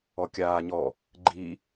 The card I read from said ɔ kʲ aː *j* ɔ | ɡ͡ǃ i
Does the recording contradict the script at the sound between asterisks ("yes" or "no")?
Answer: yes